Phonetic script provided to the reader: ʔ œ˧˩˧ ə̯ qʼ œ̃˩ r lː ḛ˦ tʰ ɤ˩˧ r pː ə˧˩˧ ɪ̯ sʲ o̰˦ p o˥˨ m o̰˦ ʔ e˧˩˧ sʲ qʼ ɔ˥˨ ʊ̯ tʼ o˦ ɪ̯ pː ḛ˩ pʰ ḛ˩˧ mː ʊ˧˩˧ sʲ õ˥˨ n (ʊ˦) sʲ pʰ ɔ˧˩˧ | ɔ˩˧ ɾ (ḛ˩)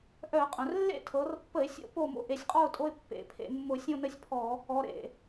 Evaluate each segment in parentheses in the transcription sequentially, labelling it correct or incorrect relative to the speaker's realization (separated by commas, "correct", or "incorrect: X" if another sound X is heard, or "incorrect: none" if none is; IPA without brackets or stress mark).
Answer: incorrect: ə˦, correct